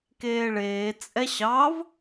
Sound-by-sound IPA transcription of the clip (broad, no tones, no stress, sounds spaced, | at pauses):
k eː ɭ eː t͡sʼ ɛ ɕ ɑ v